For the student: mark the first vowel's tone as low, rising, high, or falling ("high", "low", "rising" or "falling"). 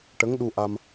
rising